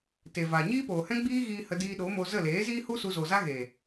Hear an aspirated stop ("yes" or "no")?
no